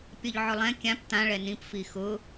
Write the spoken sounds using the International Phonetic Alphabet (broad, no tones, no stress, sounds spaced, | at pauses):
pʲ ɔ ʎ ʕ ʊ lˠ ɛ̃ kʲ ã p t̪ ã ɭ ɛ n ĩ p f i x ʊ